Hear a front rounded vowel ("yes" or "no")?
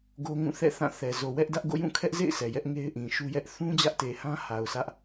no